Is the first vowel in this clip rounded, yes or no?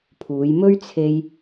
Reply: yes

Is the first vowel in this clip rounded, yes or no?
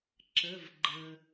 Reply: no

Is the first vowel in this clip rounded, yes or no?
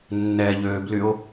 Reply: no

